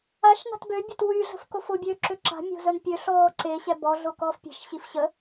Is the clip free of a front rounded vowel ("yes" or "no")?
no